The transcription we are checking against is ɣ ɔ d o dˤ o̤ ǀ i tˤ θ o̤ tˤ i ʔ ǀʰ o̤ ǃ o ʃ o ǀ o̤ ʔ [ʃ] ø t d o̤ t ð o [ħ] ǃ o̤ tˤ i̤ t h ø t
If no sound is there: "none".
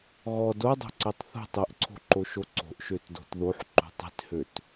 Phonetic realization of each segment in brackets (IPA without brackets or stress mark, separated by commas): ʃ, ħ